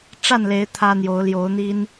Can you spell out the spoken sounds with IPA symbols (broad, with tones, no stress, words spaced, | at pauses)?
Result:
ʈ͡ʂa˥˨nle˨˦ɪ̯ t̪ʰä˦n̪jo˨˦ʊ̯ ljo˨˦ʊ̯n̪i˦n